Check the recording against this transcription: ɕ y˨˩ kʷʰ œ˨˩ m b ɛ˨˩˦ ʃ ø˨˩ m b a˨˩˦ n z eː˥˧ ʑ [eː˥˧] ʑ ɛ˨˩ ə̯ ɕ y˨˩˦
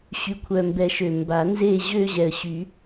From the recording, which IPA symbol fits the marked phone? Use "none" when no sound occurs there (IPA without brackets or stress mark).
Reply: øː˥˧